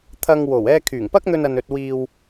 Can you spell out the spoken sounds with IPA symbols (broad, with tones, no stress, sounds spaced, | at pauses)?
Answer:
t̪ʰ ɐ˧ ŋ w o˨˩ w ɛː˧ kʰ yː˨˩ ŋ p ɐ˥ k̚ n̪ ɵ˧ n ɐ˨ n ɵ˨ t̚ w iː˨ w